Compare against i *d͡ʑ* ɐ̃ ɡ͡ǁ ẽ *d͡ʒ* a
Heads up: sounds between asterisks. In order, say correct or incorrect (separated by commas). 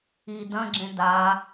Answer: incorrect, incorrect